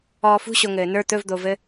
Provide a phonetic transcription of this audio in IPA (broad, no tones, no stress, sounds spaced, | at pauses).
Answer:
ɔː f ṳ ɕ o ŋ ɘː n ə˞ t̪ ɵ v d̪ o v ɘ